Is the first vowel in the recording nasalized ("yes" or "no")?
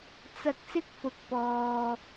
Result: no